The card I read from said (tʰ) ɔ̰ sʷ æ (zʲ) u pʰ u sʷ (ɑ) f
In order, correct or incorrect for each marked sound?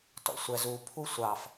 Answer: incorrect, incorrect, correct

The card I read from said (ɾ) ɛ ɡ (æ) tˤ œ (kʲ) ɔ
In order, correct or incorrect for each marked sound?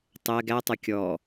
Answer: incorrect, correct, correct

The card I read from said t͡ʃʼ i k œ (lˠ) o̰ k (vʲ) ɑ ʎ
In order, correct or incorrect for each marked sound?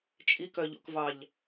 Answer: incorrect, incorrect

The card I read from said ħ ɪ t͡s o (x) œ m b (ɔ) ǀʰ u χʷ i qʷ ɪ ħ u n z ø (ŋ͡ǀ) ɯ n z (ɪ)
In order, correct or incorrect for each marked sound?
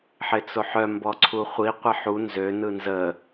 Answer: incorrect, correct, incorrect, incorrect

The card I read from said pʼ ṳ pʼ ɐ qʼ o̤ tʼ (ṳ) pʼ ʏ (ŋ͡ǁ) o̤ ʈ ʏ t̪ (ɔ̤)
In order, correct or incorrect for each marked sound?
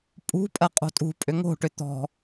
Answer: correct, incorrect, correct

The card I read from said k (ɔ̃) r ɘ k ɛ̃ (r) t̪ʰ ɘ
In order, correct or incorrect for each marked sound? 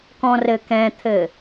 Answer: correct, incorrect

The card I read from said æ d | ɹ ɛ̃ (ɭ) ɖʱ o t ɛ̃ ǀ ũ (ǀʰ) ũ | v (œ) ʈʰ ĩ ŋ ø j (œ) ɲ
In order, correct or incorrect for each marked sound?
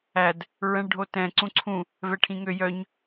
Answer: correct, correct, incorrect, correct

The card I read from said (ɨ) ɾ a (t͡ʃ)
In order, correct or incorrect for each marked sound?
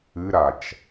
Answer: correct, correct

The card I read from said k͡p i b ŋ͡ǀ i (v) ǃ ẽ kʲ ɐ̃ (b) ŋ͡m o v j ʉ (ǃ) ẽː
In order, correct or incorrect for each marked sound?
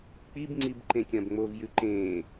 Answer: incorrect, correct, correct

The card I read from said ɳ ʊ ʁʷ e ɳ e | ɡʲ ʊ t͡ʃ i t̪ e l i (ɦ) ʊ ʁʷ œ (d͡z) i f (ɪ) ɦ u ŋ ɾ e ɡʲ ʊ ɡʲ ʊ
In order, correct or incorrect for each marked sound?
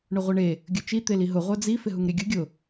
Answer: correct, correct, correct

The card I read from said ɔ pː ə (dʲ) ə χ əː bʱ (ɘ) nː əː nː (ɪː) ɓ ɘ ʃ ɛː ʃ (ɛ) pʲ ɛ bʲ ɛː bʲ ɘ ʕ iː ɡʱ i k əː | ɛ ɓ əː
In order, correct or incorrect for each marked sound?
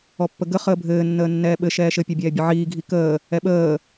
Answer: incorrect, incorrect, incorrect, incorrect

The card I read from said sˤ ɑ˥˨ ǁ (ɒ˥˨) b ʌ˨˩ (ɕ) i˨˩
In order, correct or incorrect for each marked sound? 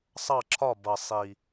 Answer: correct, incorrect

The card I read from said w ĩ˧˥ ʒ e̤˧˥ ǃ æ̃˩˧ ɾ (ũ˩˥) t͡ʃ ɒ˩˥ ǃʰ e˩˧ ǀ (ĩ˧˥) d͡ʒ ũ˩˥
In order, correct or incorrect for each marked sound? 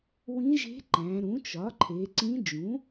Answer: correct, correct

